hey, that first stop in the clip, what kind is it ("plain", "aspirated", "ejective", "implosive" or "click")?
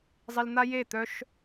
plain